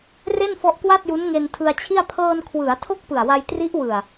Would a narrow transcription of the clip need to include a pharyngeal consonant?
no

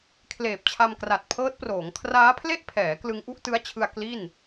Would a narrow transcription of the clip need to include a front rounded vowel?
no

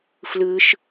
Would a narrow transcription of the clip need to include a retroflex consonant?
no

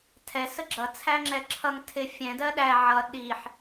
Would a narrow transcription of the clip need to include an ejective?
no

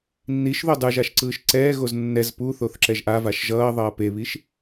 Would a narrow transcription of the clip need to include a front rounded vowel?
no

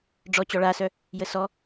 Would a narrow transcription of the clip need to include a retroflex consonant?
yes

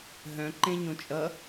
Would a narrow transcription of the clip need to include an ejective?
yes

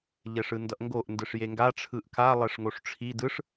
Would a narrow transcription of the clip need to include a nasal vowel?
no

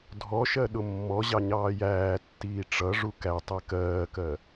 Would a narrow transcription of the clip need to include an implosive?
yes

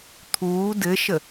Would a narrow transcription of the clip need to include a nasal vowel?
no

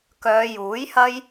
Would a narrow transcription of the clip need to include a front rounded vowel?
yes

